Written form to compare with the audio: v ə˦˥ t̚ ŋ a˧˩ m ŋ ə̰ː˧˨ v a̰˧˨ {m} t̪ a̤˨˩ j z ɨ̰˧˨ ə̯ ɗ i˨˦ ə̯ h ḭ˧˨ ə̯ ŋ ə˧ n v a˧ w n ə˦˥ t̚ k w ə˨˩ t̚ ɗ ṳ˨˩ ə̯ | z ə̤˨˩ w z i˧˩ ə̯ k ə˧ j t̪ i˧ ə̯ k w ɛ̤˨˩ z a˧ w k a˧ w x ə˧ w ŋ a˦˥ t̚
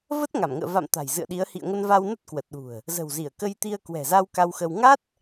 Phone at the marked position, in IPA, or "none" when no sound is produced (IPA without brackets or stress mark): m